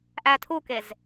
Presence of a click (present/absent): absent